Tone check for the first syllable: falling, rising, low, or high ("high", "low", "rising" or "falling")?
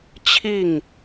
falling